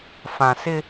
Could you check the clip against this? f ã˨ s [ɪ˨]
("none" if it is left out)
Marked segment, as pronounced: ɪ˦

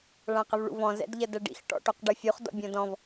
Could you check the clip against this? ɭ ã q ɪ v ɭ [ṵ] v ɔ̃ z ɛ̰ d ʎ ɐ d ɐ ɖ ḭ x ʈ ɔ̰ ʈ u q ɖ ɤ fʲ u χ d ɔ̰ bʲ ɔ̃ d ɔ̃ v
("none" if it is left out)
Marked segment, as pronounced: ṵ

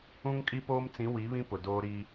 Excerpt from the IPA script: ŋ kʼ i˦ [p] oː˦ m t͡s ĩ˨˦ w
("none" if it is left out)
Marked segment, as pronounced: p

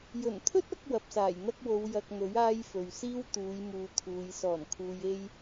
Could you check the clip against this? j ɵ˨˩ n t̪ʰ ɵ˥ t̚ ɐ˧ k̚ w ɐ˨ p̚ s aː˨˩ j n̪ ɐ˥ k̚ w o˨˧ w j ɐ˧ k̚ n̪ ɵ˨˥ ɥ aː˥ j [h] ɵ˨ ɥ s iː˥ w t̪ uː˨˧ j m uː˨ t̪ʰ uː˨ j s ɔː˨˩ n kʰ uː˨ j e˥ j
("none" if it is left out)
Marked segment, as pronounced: f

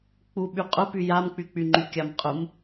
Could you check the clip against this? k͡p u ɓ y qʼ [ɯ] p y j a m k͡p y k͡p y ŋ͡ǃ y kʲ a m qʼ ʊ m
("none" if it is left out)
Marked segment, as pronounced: ʊ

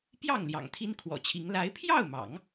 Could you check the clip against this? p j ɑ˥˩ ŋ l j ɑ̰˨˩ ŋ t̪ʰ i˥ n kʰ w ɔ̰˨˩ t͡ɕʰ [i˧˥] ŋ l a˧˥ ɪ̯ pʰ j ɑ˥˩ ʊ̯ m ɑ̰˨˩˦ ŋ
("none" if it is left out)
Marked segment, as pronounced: i˧˥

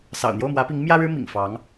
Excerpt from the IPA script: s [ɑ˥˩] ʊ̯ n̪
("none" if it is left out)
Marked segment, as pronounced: ɑ̰˨˩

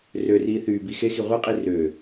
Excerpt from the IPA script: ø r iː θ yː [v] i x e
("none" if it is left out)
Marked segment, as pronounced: b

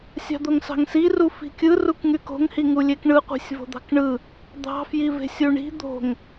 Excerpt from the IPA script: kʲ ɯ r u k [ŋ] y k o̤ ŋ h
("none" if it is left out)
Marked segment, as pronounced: ŋ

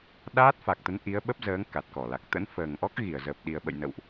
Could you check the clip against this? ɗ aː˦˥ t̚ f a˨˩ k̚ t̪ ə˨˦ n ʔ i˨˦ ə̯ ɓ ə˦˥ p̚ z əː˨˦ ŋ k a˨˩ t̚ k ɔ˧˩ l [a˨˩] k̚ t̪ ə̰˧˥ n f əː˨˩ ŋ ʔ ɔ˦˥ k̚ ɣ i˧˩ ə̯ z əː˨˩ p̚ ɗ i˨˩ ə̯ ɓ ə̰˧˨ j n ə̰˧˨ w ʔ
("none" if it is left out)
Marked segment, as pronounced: a˨˩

